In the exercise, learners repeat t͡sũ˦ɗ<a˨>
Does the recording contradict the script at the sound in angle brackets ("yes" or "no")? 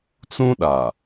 no